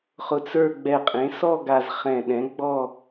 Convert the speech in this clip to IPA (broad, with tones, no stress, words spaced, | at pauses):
χʊ˧t͡sə˞˥˧ ɡ͡bɛ˧˩qʼẽ˨˥sɔ˥˧ ɡa˧zχɛ̃˧˩ɗɛ̃˨˥ ɡ͡bɔ˥˧